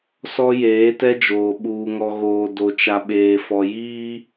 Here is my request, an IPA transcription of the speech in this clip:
sɔ˦jeː˨˦tɛ˦d͡ʒoː˨ ɓuː˨ŋɔ˨ɣoː˨ do˨t͡ʃa˨ɓeː˨ fɔ˨jiː˦

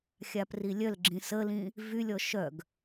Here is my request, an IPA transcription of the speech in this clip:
xʲaprilʲœlɡ͡ǁĩ səlĩ | vylʲɔ ʃœɡ

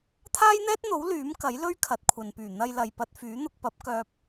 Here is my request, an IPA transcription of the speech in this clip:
t̪ʰaː˥jn̪ɛː˥t̚n̪o˨˥w lyː˨˥m kɐ˨˥jlɵ˥ɥkʰɐ˨t̚ kʷʰɐ˨npyː˨˩ n̪ɐ˧jlɐ˨jpɐ˧t̚ fyː˨˥n̪ʊ˧k̚pɐ˨˥p̚ kœː˧p̚

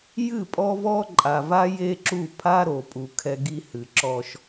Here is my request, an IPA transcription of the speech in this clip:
jɨ˦˨pʼɔ˦vɔ˦ ǃʼa˨va˦ je˦ǁu˦˨ pʰa˦ɾo˨pʼu˨ kʰɛ˦ɡi˦hɨ˨ǁɔ˦ʃ

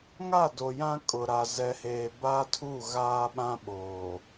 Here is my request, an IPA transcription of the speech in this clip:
ŋa˦˨do˨ jã˦kʼʊ˨ɾa˨ zɛ˨heː˨ba˦tʰu˦˨ ɣaː˦ɓã˦ ɓoː˨

